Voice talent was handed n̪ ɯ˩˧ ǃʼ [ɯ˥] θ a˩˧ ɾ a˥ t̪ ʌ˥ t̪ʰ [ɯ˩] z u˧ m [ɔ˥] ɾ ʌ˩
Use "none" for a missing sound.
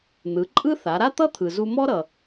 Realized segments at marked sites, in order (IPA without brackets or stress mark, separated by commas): ɯ˥, ɯ˩, ɔ˥